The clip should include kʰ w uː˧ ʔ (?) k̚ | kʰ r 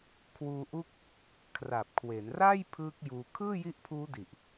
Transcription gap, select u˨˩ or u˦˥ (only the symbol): u˦˥